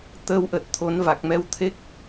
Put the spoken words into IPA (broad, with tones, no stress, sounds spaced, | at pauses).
t̪ əː˧ w ʔ ə˨˩ t̚ t̪ʰ o˨˦ n v a˨˩ k̚ m ɛ˧ w t̪ʰ e˦˥ k̚